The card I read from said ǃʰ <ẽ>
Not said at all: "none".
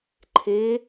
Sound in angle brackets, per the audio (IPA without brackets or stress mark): e